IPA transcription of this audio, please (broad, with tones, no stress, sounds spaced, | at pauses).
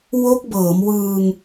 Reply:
w o˦˥ k̚ b ɤː˩˦ m w ɯː˧ ŋ